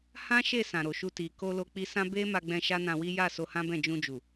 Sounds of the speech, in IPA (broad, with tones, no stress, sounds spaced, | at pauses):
h ã˦ ʃ e˦˨ s ã˨ ɾ o˨ ʃ u˧ t i˨ k o˧ l o˧ k͡p i˧ s ã˦ b e˦ m a˧ ɡ͡b ɛ̃˧ ʃ a˦ n ã˧ w i˦ j a˦˨ s o˧ h ã˦ b ɛ̃˦˨ d͡ʒ ũ˧ d͡ʒ u˨